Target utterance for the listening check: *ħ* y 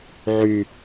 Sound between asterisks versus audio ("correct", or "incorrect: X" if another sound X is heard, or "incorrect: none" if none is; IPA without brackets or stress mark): incorrect: ʕ